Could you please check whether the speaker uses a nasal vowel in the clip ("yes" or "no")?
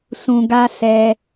yes